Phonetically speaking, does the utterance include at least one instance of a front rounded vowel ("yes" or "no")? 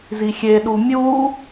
no